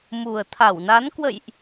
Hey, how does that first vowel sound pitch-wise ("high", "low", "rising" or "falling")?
low